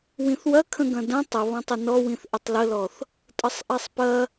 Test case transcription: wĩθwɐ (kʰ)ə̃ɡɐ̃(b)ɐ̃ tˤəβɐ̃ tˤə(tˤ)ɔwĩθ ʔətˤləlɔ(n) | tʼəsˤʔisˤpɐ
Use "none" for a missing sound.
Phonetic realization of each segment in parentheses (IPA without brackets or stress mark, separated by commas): kʰ, d, n, θ